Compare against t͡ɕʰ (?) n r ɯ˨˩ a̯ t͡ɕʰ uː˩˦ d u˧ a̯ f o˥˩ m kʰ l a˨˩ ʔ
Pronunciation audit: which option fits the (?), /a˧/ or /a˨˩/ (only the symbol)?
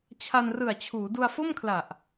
a˧